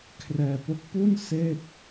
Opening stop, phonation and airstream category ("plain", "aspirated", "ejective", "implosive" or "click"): aspirated